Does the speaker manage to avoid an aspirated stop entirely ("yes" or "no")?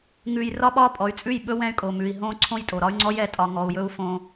no